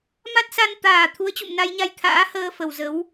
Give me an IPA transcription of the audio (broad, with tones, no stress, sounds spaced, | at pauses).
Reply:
m a˦˥ t̚ s a˧ n t̪ aː˨˩ t̪ʰ u˨˦ ə̯ t͡ɕ ṵ˧˨ m n a˧ j ɲ a˧ j t̪ʰ a̰ː˧˥ h əː˧ f ə˨˩ w z ə˨˦ w